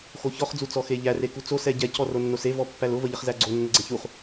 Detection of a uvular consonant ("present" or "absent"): present